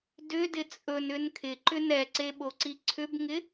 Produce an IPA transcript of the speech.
d ʏ d ɪ t͡sʼ ɵ n ʏ n kʰ ɪ ǃ ʏ n ɛ ǀ e ɓ o ǀ i ǀʰ ʏ b ŋ ɪ

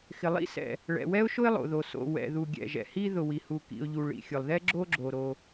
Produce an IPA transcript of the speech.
x ɪ˩ lˠ ḭ˥ s ɛ̰˩ | ɭ ɛ̰˩ w ɛ˥ ʊ̯ ʃ ʊ˥ ɪ̯ lˠ o̰˩ ð o˩ s o̰˩ w ɛ̰˩ ð u˩ ɡʲ ɛ̰˩ ʒ ɛ̰˩ h i˥ ð ʊ˩ w i˩ h u˩ k ḭ˩ ʊ̯ ʎ u˩ ɭ ḭ˩ xʲ ʊ˩ lˠ ð ɛ˥ ɡ͡ǁ o˥ ɡ͡ǁ o˩ ɾ o˩

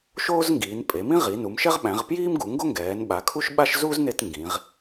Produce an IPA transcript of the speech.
ʃ oː˥ z ŋ ɡ iː˩˧ n pʼ e˩˧ m ĩ˥ ʁ i˩˧ n u˩˧ m ʃ ɛ˥ ʁ ɓ æ̃˩˧ ʁ p j iː˥ m ɡ u˩˧ ŋ ɡ o˥ ŋ ɡ ɛː˩˧ n ɓ a˩˧ kʰ u˥ ʃ ɓ a˥ ʃ z u˥ z n e˥ t ŋ ɡ ĩ˩˧ ʁ

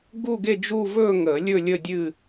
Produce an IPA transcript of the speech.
ɡ u˥˧ ɡ e˥˧ d͡ʒ u˥˧ v ɵː˥˧ ŋ əː˨˩˦ lʲ ɵ˥˧ lʲ ə˥˧ dʲ ɨ˥˧

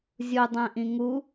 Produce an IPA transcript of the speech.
zʲ u dˤ ɛ̃ ʔ ĩ ŋ u

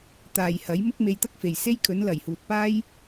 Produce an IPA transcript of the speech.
t̪ aː˨ j h ɐ˨˥ j m ʊ˥ k̚ m e˧ j t̪ ɐ˥ k̚ f e˨ j s e˥ j kʰ ɵ˨˥ n l ɐ˨˩ j h uː˨ t̚ p aː˥ j

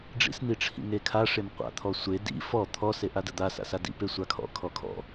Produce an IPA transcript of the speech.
ɖ͡ʐ ḭ s n̪ i ʈ͡ʂʰ ḭ ŋ e kʰ a ʂ e m qʷ a̰ t̪ʰ ɔ sʷ e d ḭ f ɔ t̪ʰ ɔ s e ʔ a d ə d̪ a s a̰ s a d ḭ p e sʷ a kʰ ɔ̰ kʰ ɔ kʰ ɔ̰

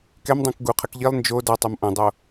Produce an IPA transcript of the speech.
k ɛ m dˤ õ k ɡ u qʰ ə k ʎ i lˠ n d͡ʒ o d ʌ tˤ o m ʔ õ dˤ o

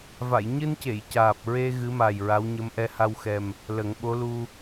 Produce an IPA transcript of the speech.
v a˨˩˨ j ɲ ɨ˧ n c e˨˩˨ j c aː˨˩ p̚ ɹ e˧ ɣ ɨ˧˥ m a˨˩ j ɹ a˧˥ w ɲ ə˧˥ m ʔ ɛ˧˥ h a˧ w x ɛ˨˩ m | l ə˨˩˦ ŋ ɓ o˧˥ l u˧

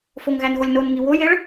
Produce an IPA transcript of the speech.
f o ŋ ɣ æ n ɣ o lʲ n o n ŋ i w o j e ɭ

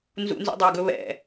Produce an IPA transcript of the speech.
n z ṵ n z ṵ dˤ ɑ ɡ ɵ β ɛ̰

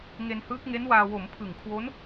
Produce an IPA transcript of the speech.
ŋ e˧ n h ɯː˦˥ k̚ ŋ e˦˥ n w aː˧ w o˩˦ m pʰ ɯ˨˩ ŋ kʰ w o˦˥ n

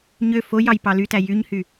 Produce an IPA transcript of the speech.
ɲ ø f o j ɑ j p ɑ l y t æ j y ɲ h y

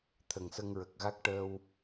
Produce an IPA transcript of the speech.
t̪ʰ ə˨˩ ŋ s ə˧ ŋ ɹ ə˨˩ k̚ ɣ a˦˥ k̚ ʈ əː˧ w

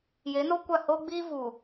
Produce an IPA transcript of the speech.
j e˨˦ n o˦ kʷ a˦˨ h oː˦ ɡ͡b iː˦ v uː˨

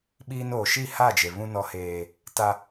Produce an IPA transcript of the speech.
ɓ iː˦ n oː˨ ʃ i˦˨ h a˦˨ d͡ʒ e˨ β ũ˦ n ɔ˦ h eː˦ | t a˦

